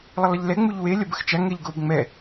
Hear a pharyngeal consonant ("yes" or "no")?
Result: no